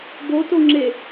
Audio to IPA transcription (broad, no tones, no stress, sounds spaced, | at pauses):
b o t o ŋ͡ǁ e